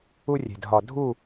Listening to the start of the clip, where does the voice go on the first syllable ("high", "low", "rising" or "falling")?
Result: high